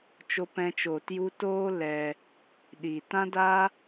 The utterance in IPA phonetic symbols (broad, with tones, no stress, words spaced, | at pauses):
t͡ʃo˦pɛ̃˦t͡ʃoː˧tju˦ toː˦ lɛ˧ | ɗi˨tã˦da˦